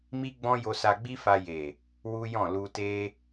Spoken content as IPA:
m i˦ ɡ͡b ɔ̃˦ j o˧ s a˧ ɡ͡b i˦ f a˧ j e˨ | w u˦ j ɔ̃˦˨ l u˧ t e˦

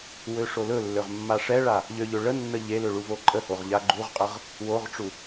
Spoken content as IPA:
w ø ʂ o l ɵ lː ø ʁ mː a ʂ ɛ ɭ a | ʎ ø ʎ ø ɭ ə nː ə ʎ e l ø ɭ u v o ǃʼ ə h o ʁ ʎ a ɡ͡ǃ u ʁ qʼ ə ʁ | w o ʁ ʈ͡ʂ u

